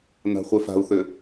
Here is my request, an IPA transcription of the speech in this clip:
n a̤ χʷ ɛ f a̤ u̯ θ ø

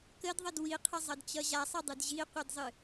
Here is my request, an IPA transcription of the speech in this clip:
k ə d ðˤ ʌ d w i qʰ ə zˤ ʌ d t͡ɕ ʌ ʑ a sˤ ʌ dˤ ɨ d ʑ i qʷ ɨ d zˤ ɨ

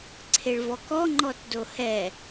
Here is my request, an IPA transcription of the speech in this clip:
ǀʰ e ɭ v ɔ k ɔ ŋ͡ǃ ɔ t d o h ɛ

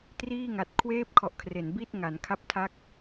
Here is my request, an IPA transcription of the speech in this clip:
t r iː˥˩ ŋ a˨˩ t̚ kʰ w eː˥˩ p̚ kʰ ɔ˨˩ ʔ kʰ r e˩˦ n b i˥˩ t̚ ŋ a˩˦ n kʰ a˦˥ p̚ tʰ a˦˥ k̚

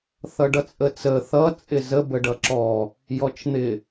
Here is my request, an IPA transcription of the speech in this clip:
θ ʌ ɖ ʌ t͡sʼ ə t͡s ə θ ʌ t͡sʼ ɪ z ə b ə ɖ ʌ ǁ ɔ | j ɔ t͡ʃ n̪ ɪ

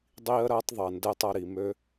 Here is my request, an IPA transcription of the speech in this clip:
dˤ iː˦ ə̯ ɾ ɐː˦ tˤ ðˤ ɐ˨ n d ɛ˦ tˤ ɐ˧ ɾ i˨ m ø˦

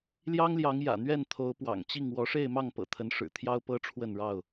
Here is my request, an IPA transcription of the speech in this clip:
l j ɑ˦ ŋ l j ɑ˨˦ ŋ j ä̰˨˩ n̪ ɥ ɛ˥˨ n t̪ʰ o˨˦ ʊ̯ p w ɑ̰˨˩ ŋ t͡ɕ i˥˨ ŋ w ɔ˨˦ ʂ e˥˨ ɪ̯ m ɑ˥˨ ŋ p ɤ̰˨˩ t̪ʰ ə˨˦ n ʂ ɻ̩˨˩ t̪ʰ j ɑ˦ ʊ̯ p ɤ˦ ʈ͡ʂʰ w ə˥˨ n ɻ ɑ˥˨ ʊ̯

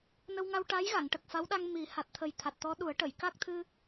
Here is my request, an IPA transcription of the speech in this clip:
n ə˧ w ŋ a˧ w ʈ a˧˥ j ɣ a˨˩˨ ŋ ʈ ə˨˩ k̚ f a˧˥ w ɗ a˧ ŋ m i˨˩˦ h a˨˩ t̚ t̪ʰ ə˨˩ j t̪ʰ a˨˩ t̚ t̪ ɔ˧˥ ɗ u˨˩˦ ə̯ ʈ ə˨˩˨ j k a˦˥ k̚ t̪ʰ ɨ˧

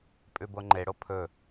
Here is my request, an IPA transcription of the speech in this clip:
pʼ ʉ b o ŋ͡ǃ e ɽ o pʰ ɵ

